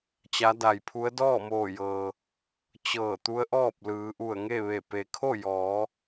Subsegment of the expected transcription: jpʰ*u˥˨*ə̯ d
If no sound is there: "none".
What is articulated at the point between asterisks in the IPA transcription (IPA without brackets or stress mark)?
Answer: u˧˥